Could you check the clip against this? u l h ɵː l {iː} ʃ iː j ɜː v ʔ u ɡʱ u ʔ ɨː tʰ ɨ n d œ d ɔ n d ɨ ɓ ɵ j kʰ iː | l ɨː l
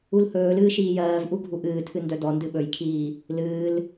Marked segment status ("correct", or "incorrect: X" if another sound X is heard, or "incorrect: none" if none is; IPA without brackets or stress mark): incorrect: ɨː